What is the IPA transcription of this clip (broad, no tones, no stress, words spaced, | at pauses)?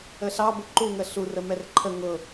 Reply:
əɬɑbə ǃuŋə ɬurə mɛrǃʰə ŋʊ